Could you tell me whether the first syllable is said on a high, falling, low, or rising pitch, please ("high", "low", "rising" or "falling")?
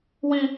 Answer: high